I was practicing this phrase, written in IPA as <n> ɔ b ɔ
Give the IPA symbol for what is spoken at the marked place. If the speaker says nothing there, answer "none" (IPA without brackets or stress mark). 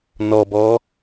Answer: n